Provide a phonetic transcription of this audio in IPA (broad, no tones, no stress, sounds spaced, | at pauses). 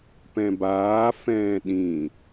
p ɛ̃ b aː f ɛ̃ː ɗ ĩ